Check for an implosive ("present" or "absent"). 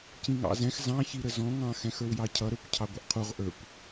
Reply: absent